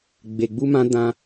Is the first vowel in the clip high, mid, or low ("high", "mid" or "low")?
mid